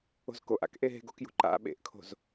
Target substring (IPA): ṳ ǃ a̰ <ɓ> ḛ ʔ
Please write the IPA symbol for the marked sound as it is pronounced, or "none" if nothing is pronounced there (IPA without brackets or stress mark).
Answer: ɓ